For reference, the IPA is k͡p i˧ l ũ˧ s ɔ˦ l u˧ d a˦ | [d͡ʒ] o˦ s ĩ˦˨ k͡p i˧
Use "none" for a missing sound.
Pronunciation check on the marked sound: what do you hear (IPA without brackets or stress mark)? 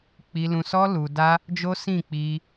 d͡ʒ